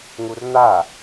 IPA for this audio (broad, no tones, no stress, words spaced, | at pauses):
ŋurn̪a